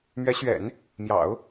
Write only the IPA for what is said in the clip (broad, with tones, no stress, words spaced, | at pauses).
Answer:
mɥɛ˧˥ɕɥɛ̰˨˩˦n | mjɑ̰˨˩˦ʊ̯